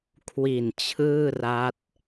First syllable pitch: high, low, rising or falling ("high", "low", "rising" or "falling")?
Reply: low